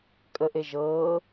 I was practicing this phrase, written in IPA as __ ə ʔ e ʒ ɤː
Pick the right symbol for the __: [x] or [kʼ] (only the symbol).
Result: kʼ